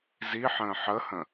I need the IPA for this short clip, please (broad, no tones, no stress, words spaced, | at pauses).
ziħə̃ː ħəhə̃